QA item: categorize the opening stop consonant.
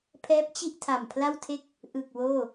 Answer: aspirated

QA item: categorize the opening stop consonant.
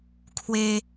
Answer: aspirated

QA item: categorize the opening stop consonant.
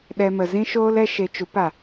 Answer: implosive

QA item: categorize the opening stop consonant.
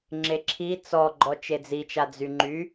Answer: click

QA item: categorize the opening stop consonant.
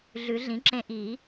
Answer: click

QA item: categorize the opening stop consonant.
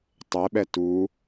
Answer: plain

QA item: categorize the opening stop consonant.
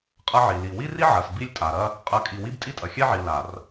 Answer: ejective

